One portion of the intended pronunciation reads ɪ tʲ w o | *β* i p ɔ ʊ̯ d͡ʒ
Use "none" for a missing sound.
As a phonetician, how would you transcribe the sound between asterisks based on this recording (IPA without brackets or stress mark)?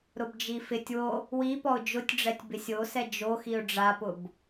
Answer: w